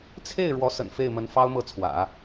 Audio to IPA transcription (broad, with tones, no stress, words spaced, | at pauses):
t͡sʰe˥˩ɪ̯ ɻwɔ˧˥sə̰˨˩n fe˥˩ɪ̯mə˧˥n fɑ˥ʊ̯mɤ˥˩ t͡sʰwä̰˨˩˦